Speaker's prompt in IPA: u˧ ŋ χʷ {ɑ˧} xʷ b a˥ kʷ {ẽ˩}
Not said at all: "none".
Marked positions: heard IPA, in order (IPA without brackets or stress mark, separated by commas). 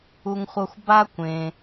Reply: ʌ˧, ẽ˩